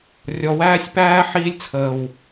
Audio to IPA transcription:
rʲ ɔ˧ w æː˦ sʲ p æː˦ ħ iː˦ lʲ t͡sʰ əː˨ w

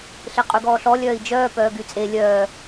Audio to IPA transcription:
ɬ e qʼ y ɡ ɔː ɬ ɔ lʲ œː i̯ d͡ʒ œː p œː ɡ y t͡sʼ e lʲ œː

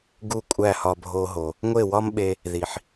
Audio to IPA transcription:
ɡ u˥˩ kʷʼ æ˥˩ h ɒ˧ bʱ o˧ ɦ o˩ | ŋʷ e˥˩ w ɒ˥ m ɓ e˧ | ð i˩ ħ

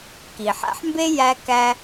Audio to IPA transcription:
k i˩ ħ æ̰˧ ħ m b e˥ j æ˧ k æ˧

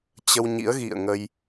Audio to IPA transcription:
t͡ɕ ə˧ w ɲ ḭ˧˥ ə̯ ɣ ḭ˧˨ ə̯ ŋ ə˧ j

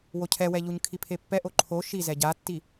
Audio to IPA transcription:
w o cʰ ɛ w ɛ ʎ u ɲ kʰ i pʰ e pː ɛ ʔ o ǃʰ o ʃ i z ɛ ɟ a tː i

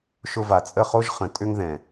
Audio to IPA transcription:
ʃ ʊ˧ v a˨ t͡sʼ ə˦˨ χ o˦ ʒ χ ə̃˨ tʼ ʏ˧ ŋ ð ɛ̃˨

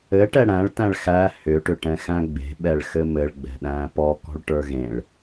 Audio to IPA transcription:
ɘ ʈ ɛ ɽ æ̃ ɭ t æ̃ ɭ x æ h ʏ ʈ ʏ ʈ ɛ̃ x æ̃ ɡ͡b e̤ ɓ ɛ ɭ x ɘ m ɘ ɭ ɡ͡b ɛ̤ ɗ æ̃ː p ɔ k ɔ̤ ɭ ʈ ə˞ ɣ ẽ ɭ

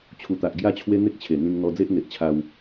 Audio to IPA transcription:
t͡ɕʰ u˨˩ t̪ a˨ ʔ ɡ j a˥˧ t͡ɕʰ w e˦ n̪ e˦ k̚ t͡ɕʰ e˨˩ n̪ ĩ˧ ŋ n̪ ɔ˧ d͡z e˦ ʔ n̪ e˨ ʔ t͡ɕʰ a˧ w

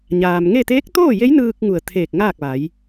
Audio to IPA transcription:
ɲ aː˩ m ŋ e˥˨ t̪ eː˧˥ k̚ t̪ oː˥˨ j e˧˥ j n ɯː˧ k̚ ŋ u˧˩ ə̯ t̪ʰ eː˧˩ k̚ ŋ aː˥˨ k̚ ʋ a˩˧ j

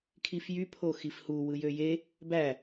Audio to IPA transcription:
kʰ i f j y pʰ o x i f h u w ɯ j ø j e | b æ

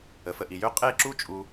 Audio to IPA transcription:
ə˨ f ə˧ ʔ i˨ j ø˦ qʼ e˦˨ ǁ u˦ t͡ʃʼ u˧

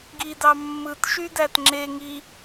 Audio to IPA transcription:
ɡ i d ɑ mː ɯ t ʃ y d æ t ŋ͡ǁ e ŋ i

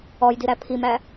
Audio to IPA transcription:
ɔ j d i ɾ æ pʰ i m æ

